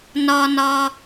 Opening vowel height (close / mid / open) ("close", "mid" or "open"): open